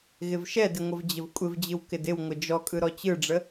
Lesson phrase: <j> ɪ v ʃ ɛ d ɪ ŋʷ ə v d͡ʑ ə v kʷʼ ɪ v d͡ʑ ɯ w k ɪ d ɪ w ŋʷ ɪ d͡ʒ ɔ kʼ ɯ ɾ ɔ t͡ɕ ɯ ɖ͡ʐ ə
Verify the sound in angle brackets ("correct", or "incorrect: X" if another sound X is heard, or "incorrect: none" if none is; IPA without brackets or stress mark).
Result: incorrect: ɣ